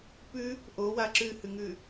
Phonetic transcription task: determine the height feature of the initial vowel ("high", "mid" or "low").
high